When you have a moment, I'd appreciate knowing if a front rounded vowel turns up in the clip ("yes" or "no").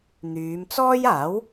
yes